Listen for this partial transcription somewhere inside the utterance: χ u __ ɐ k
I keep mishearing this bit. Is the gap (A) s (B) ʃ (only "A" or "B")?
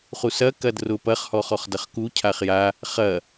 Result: A